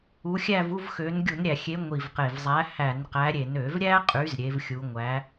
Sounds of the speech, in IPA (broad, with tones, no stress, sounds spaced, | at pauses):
u˨˦ xʲ æ˥˧ v u˥˧ v x ø˨˦ n ɡʲ u˧˩˧ n ɾʲ æ˨˩ xʲ e˨˦ ŋʷ i˨˩ v q e˨˩ v zˤ æ˨˦ h æ˧˩˧ n q æ˨˦ ɾʲ e˧˩˧ n ø˧˩˧ v ɾʲ æ˥ qʼ y˨˦ z ɾʲ e˨˦ v xʲ u˨˦ ŋʷ æ˨˦